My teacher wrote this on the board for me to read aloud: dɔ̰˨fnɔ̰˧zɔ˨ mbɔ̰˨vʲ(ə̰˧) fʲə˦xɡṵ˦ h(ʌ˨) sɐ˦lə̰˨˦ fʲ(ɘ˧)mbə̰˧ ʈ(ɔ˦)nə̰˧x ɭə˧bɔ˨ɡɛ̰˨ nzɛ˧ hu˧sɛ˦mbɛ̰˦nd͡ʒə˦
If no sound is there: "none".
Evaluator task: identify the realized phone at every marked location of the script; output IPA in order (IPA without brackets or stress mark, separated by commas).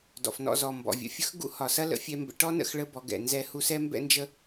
ə̰˧, ɒ˨, ɛ˧, ɔ˦